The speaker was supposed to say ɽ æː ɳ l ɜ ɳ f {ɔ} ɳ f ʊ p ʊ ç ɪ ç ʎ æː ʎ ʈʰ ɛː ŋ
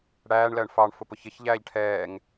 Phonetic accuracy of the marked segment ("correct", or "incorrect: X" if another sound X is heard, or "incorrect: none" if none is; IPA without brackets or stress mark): incorrect: ɑ